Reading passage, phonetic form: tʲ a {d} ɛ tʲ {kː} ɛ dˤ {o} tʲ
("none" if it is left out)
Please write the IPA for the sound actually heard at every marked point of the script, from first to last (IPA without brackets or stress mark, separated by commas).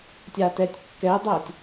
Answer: t, kː, o